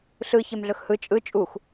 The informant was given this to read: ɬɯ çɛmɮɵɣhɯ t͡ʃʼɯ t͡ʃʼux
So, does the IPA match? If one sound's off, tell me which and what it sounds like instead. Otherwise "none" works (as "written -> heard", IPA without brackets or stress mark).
ɣ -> x